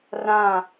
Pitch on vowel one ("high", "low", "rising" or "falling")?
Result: falling